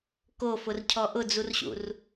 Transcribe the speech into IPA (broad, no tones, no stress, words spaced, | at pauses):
kofʊrcʰɔ ʔʊd͡zurɕṵr